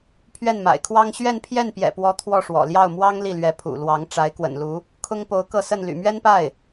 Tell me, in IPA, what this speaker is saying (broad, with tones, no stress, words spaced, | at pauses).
pʰɥɛ˥˩nma̰˨˩ɪ̯kʰwɑ˥ŋ ɕɥɛ˥˧n pʰjɛ˥˩npjɛ̰˨˩pwɔ˧˥ t̪ʰwɔ˥˩ʂwɔ̰˨˩ ljɑ˥˩ʊ̯ mwɑ˥ŋ li˥˩lɥɛ˧˥ pʰṵ˨˩lwɑ˧˥ŋ ʈ͡ʂa˧˥ɪ̯kwə̰˨˩nlu˧˥ | kʰʊ˥ŋpo˧˥ʊ̯ kɤ˥˧sə˥˩n ly̰˨˩mɥɛ˥npa˥˩ɪ̯